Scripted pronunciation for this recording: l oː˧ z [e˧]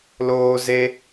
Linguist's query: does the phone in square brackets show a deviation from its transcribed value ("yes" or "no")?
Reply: no